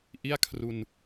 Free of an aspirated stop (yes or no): no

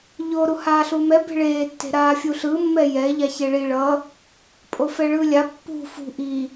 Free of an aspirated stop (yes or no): yes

